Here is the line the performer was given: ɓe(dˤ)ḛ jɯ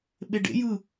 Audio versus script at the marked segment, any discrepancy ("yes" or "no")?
yes